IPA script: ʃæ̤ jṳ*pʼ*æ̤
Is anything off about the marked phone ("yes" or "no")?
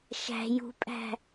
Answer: no